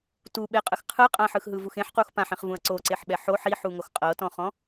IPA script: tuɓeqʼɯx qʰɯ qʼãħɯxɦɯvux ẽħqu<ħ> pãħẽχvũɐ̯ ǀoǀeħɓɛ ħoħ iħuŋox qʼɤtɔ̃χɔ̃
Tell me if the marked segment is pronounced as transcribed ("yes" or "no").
no